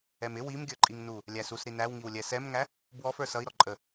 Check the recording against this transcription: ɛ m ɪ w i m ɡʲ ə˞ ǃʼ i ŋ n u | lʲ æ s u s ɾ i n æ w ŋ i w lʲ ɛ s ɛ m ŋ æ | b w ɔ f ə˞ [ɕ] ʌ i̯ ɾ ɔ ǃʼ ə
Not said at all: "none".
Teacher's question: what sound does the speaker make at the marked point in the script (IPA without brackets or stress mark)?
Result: s